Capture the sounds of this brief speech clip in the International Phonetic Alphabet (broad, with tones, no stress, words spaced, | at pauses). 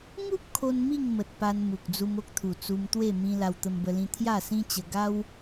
ŋu˦p̚ kʰo˦nmi˥˧ŋmə˨t̚ pa˧nmu˨k̚ d͡zu˧mo˦k̚t̪ʰu˨˩ t͡su˧mt̪we˥˧mĩ˧ la˧wt̪ə˧mbə˧lĩ˧ t̪ʰja˥˧sĩ˦t͡ɕə˧ ɡa˦w